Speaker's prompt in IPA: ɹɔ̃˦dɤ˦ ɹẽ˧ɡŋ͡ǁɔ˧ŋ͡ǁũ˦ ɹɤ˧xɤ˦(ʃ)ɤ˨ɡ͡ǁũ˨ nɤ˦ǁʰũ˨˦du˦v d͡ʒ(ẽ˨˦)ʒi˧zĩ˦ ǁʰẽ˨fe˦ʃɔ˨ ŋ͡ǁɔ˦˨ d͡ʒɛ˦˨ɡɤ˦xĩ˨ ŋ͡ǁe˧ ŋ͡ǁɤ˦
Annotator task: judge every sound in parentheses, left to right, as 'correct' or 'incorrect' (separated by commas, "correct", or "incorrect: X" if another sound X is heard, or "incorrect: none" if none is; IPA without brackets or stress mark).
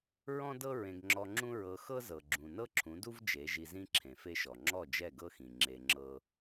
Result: incorrect: z, incorrect: e˨˦